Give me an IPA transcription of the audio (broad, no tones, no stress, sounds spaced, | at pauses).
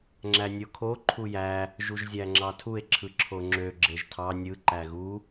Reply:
ŋ͡ǁ æ nʲ o kʰ o ǃʰ u j æ | ʒ u ʒ zʲ æ ŋ͡ǁ ɑ tʰ u e̯ ǁʰ ɯ ǁʰ o ŋ͡ǁ ø ɡ͡ǁ e ʒ tʰ ɑ nʲ ɯ ǃ æ ɣ u